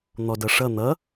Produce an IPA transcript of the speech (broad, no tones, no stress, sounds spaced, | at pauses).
n̪ ɔ d ʌ ʂ ʌ n̪ ʌ